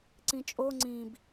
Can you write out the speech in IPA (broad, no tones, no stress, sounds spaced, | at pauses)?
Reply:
ǀ ĩ t͡ʃʼ o ŋ͡ǀ ĩ b